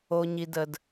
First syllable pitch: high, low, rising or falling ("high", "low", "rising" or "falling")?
low